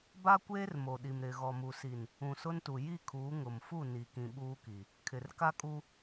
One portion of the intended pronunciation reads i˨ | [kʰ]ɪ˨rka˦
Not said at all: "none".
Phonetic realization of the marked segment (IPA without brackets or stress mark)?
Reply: kʰ